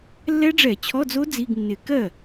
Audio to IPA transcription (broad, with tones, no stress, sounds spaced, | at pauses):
lː ɛ˦˥ ɖ͡ʐ ɛ˧˩˧ t͡ɕʰ ɔ˧˥˧ d͡z o˦˥ d͡z i˧˥˧ ɡ nː ɪ˧˩˧ k ɜ˥˩